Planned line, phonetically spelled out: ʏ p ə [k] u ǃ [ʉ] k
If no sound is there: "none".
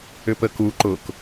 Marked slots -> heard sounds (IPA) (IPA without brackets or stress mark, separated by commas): k, ʊ